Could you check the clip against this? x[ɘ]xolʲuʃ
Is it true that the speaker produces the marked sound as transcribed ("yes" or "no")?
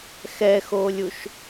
no